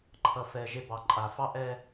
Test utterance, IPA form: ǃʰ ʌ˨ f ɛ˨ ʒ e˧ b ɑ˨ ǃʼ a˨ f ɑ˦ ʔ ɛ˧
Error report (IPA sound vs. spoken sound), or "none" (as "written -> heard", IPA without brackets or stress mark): none